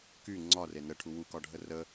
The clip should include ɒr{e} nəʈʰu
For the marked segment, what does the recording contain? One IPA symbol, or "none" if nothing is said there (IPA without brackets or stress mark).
e